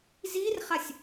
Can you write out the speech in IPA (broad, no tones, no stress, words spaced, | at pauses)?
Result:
zirχasʲ